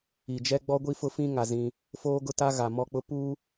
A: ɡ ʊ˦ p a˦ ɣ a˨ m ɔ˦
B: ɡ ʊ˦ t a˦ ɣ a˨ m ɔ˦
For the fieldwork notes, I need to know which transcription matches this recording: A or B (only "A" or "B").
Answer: B